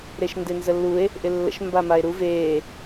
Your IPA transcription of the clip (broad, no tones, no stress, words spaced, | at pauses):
ɾeʃndenzəlːue̯ | ʔɪlːə̰ʃ mbamae̯ɾu veː